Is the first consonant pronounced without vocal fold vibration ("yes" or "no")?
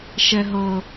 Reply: yes